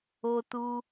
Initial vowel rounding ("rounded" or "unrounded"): rounded